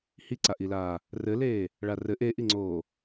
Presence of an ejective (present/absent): absent